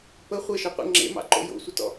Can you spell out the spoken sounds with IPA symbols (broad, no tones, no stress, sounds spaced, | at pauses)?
p ə χʷ e ʃ ɔ qʷ ḛ ŋ͡ǁ ḛ m ɑ̰ ǃ o̰ j o̰ sʷ ə t ɔ̰